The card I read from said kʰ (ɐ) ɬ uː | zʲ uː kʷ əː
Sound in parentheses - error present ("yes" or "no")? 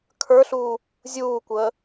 yes